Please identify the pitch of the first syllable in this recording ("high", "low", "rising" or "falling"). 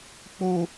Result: low